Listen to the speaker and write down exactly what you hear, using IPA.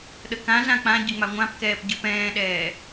ɗ ə k ã z ã k͡p ã ɟ ɪ ŋ͡m a ŋʷ ã p k ɛː p ɟ ɯ p ɛ̃ː ɗ ɛː

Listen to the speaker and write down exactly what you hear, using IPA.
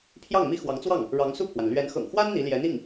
pʰ j ɑ˥˩ ŋ m i˥ x w ɑ˧˥ ŋ t͡s w ɑ˥˩ ŋ | ɻ ɑ˧˥ ŋ s u˥˩ pʰ w a˩ n l ɥ ɛ˧˥ n x ɤ̰˨˩ ŋ x w a˥ n n̪ i˧˥ l j ɛ˧˥ n̪ i˥˩ ŋ

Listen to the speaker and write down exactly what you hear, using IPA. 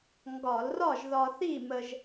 ŋ ɡ ɒ˧˩˧ l r ɒ˥˨ ʒ ð ɒ˧ θ i˥˨ m ə˧ ʒ

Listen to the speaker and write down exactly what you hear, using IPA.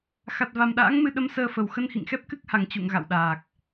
x a˨˩ t̚ v a˨˩ m ɗ a̰ː˧˥ ŋ m ɨ˧ ɗ ə˨˦ m s əː˧ f ə˨˩ w x ə˧ n h ḭ˧˨ ŋ x ɛ˦˥ p̚ k ɨ˦˥ k̚ h a˨˩ ŋ t͡ɕ ṵ˧˨ ŋ ɣ a̰˧˨ w ɗ aː˨˩ k̚

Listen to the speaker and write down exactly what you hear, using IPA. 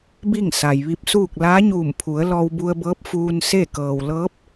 b i˥˨ ŋ s a˩ j ʋ i˧ p̚ s uː˥˨ k̚ l aː˧˥ ɲ uː˧˩ m pʰ u˩˧ ə̯ l ɔː˧ w b u˧ ə̯ b ɤː˧˥ p̚ f uː˧ n s e˥˨ k ɤː˩ w l ɤː˧˥ p̚

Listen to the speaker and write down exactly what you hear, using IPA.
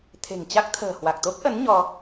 t̪ʰ e̤˨˩ ŋ t͡ɕ a˦˥ k̚ t̪ʰ ə̤ː˨˩ h w a˨˩ k̚ t̪ o˦˥ k̚ ʔ ə˨˦ n ɲ ɔ˧

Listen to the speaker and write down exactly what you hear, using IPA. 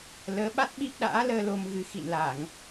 l əː˨˦ ɓ a˦˥ t̚ ɓ i˦˥ p̚ ɗ a̰ː˧˥ l əː˧ l o˧ m ɣ ɨ˧ x ḭ˧˨ n l a˧˩˨ ŋ

